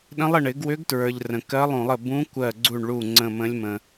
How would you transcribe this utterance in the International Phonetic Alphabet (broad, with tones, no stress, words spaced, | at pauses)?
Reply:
ɗə̃˧˥lˠə˧˩ɳ ɪ˧˩˧ɡwʏ˧˥ɡtɹə˞˩ʎ rə̃˩kɜ˧˥lˠũ˧˩˧lˠə˧˩ bũ˧˥kʷɜ˧˩ɡ͡ǀu˧˩ɳɭu˧˩ ŋ͡ǀə̃˧˩mə̃˧˥lʲmə̃˩